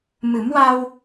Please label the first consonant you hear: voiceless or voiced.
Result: voiced